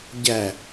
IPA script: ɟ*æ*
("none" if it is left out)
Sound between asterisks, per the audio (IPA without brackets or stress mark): æ